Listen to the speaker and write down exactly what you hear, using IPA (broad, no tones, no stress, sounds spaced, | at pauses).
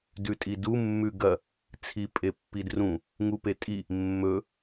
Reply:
d ʉ tʼ i d u mː ʉ ɡ ɐ | t͡sʰ i pʼ e pː i d r ũ | ŋ u p e tʼ i | mː ɵ